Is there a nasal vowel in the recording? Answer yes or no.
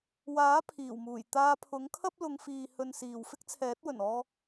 no